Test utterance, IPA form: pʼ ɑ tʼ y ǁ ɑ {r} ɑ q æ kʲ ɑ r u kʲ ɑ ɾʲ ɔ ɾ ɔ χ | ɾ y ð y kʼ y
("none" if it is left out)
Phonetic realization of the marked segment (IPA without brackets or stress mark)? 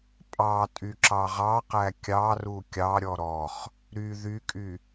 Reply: ʁ